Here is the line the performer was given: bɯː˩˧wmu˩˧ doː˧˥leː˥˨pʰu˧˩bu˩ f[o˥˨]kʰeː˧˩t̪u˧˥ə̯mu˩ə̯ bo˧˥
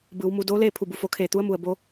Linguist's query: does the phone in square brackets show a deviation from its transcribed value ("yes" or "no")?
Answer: yes